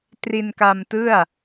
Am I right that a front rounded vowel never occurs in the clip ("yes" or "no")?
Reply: yes